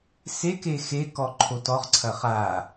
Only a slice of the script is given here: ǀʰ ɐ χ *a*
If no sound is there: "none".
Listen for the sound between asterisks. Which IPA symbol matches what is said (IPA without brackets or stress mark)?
a